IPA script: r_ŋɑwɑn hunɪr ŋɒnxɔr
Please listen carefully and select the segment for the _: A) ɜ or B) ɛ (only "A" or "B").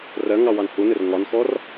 A